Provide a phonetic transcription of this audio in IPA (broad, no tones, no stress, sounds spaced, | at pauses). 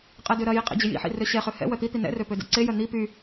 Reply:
qʼ ɛ d ø ɾ ɐ j i qʼ ḭ d͡ʑ ɪ j ḭ ħ ḭ r ø ɕ ɛ χ ø h ɛ̰ w œ t̪ i t̪ i n ɛ̰ r ø p ø d ɛ̰ ǀ e j œ n̪ i p y